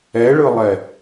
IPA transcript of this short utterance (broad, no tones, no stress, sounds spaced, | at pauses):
ɛ ɭ ɯ lˠ ɛ